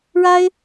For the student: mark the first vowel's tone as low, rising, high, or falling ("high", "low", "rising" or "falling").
high